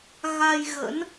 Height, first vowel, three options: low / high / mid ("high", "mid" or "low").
low